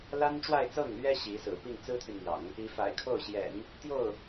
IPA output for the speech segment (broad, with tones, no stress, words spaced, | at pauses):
la˥nʈ͡ʂwa˥˧ɪ̯t͡sɤ˥˩ŋlɥɛ˥ ɕi˧˥sɹ̩˨˩ pi˥˩ŋ t͡sɹ̩˥t̪ʰy˨nn̪jɑ̰˨˩˦ŋ | i˧˥ fa̰˨˩ɪ̯kʰo˥˩ʊ̯ɕjɛ̰˨˩˦n | t̪jo˥˩ʊ̯